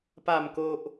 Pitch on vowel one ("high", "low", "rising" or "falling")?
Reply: low